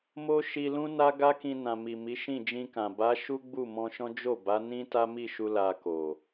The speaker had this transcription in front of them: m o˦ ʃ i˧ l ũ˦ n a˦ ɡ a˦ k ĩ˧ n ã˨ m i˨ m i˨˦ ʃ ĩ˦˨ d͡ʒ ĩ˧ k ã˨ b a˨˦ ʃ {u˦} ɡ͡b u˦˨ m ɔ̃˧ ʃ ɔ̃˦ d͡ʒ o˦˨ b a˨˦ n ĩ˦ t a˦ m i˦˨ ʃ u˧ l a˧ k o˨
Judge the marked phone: correct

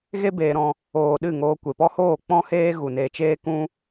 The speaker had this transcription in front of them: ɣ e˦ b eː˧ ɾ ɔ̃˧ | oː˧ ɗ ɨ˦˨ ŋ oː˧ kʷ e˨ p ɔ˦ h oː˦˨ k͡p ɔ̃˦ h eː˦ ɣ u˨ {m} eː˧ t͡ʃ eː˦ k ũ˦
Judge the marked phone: incorrect: n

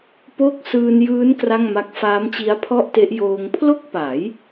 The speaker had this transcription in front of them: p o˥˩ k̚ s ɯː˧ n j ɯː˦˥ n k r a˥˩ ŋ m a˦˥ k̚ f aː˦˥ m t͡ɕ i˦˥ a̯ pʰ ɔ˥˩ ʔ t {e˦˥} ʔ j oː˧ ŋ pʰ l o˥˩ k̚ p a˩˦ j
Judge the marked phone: correct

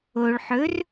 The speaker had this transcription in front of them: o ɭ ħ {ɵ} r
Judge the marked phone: correct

